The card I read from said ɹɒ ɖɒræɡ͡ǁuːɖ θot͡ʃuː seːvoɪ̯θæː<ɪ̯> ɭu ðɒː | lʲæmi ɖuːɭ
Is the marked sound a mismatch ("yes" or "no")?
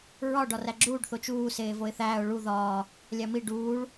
yes